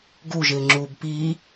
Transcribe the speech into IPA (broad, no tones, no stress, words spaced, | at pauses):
ɡuʒɪːŋ͡ǁuːb piː